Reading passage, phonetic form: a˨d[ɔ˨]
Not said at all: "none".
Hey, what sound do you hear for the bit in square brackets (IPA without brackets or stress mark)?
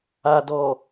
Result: ɔ˨